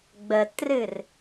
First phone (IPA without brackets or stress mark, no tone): ɡ͡b